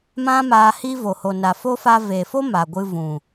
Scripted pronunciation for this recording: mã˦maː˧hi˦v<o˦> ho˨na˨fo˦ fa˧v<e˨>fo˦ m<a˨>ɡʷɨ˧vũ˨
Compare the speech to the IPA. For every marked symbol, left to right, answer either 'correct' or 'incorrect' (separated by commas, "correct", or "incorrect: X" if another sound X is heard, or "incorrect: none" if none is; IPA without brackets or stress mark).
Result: incorrect: o˨, correct, correct